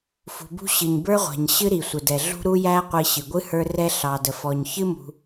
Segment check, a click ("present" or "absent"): absent